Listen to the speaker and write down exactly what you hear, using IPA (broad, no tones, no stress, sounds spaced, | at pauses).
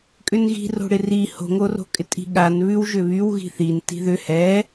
kʼ ʏ n ɣ i̤ r o̤ ɽ ɪ r i h o̤ ŋ o r o̤ kʼ ɪ tʼ i̤ ɠ a n β ʉ w ʒ ʏ β y w ɣ i̤ θ i n t i̤ ð ʏ h ɛ